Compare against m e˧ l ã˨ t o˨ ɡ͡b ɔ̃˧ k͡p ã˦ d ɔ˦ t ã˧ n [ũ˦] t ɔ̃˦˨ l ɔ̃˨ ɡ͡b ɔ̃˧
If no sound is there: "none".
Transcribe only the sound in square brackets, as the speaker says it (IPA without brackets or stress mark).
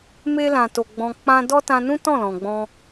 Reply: ũ˦